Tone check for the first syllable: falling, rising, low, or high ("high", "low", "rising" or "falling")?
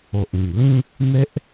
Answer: low